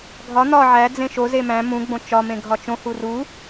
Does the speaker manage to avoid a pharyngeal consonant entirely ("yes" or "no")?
no